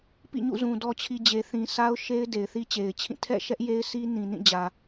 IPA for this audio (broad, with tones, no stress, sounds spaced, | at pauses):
p ḭ˦˨ ɲ ṵ˦˨ z ũ˨ d ɔ˨ t͡ɕʰ i˨ d͡ʑ e˨ θ ĩ˨ s a˦ ʊ̯ ʃ e˦ ɪ̯ d e˨ ɪ̯ θ i˦ t͡ɕ e˨ ɪ̯ t͡ɕʰ ĩ˦˨ tʰ ɛ̰˦˨ ʃ ɛ˦ ʔ j e˦ ɪ̯ s i˦ n ĩ˨ n ĩ˦˨ d͡ʑ ä˨